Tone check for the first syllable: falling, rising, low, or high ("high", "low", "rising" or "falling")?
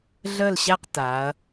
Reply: falling